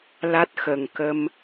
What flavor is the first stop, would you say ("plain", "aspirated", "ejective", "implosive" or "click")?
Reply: plain